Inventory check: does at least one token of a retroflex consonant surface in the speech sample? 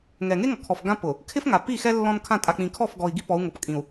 no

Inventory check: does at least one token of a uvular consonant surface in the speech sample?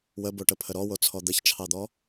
no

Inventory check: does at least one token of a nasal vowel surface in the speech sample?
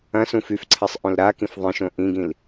yes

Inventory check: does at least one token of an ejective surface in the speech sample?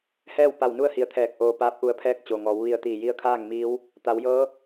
no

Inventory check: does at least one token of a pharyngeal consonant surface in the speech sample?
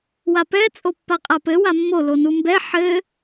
yes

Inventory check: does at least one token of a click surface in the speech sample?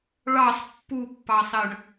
no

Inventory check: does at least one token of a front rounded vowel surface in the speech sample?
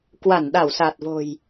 no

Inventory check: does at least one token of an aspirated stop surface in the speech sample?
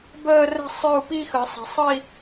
no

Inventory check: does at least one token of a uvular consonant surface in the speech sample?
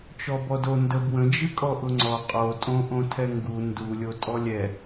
yes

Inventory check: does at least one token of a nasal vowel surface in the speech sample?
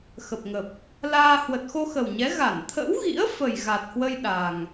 no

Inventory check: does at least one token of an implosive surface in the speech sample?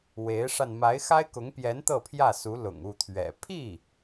no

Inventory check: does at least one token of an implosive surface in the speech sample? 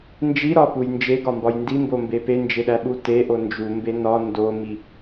yes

